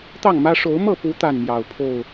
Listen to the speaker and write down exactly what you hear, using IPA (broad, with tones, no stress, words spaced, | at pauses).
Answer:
t̪ɑ˥˨ŋmä˦ ʂo˨˦ʊ̯mɤ˥˨pu˨˦ t̪a˥˨nmjɑ˨˩ʊ̯pʰo˥˨ʊ̯